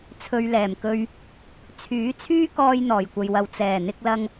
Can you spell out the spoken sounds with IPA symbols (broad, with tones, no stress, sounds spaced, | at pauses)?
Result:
t͡sʰ ɵ˧ ɥ l ɛː˨˩ m k ɵ˧ ɥ | t͡sʰ yː˨˥ t͡sʰ yː˥ k ɔː˧ j n̪ ɔː˨˩ j kʷ ɐ˨ j w ɐ˨ w t͡s ɛː˨˩ n̪ ɪ˧ k̚ l ɐ˧ ŋ